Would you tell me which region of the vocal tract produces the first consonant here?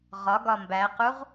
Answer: uvula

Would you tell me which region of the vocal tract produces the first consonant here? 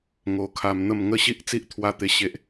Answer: velum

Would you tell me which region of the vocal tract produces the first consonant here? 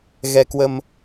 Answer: velum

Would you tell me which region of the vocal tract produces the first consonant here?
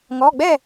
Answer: velum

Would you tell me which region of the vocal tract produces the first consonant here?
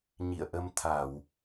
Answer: palate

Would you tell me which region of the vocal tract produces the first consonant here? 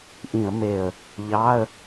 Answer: throat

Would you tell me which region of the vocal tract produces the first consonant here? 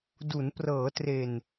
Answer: tongue tip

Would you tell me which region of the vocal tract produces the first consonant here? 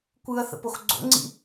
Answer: velum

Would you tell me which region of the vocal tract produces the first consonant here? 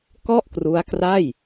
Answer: velum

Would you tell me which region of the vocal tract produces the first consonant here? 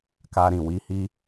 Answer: velum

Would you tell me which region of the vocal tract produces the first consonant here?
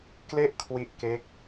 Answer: velum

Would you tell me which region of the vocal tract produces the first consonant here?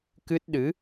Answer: velum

